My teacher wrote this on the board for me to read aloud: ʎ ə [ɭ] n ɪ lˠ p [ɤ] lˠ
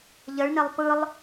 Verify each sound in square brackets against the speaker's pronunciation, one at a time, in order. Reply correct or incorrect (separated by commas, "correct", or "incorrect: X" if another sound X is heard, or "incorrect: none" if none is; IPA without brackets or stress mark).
correct, incorrect: ɯ